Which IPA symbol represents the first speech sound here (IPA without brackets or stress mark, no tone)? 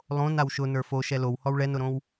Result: lˠ